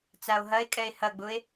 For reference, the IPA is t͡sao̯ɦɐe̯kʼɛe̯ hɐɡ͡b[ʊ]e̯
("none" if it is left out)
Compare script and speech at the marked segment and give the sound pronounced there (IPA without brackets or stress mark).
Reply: ʊ